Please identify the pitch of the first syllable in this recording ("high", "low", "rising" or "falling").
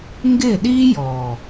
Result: falling